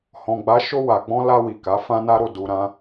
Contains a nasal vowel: yes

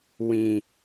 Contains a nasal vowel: yes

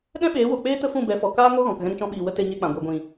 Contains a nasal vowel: yes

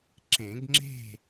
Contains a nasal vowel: yes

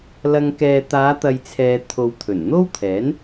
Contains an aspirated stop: yes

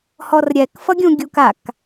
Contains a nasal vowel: yes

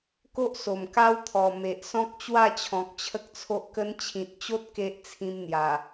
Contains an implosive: no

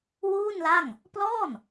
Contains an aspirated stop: no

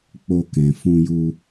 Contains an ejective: no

